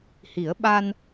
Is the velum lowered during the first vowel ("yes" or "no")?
no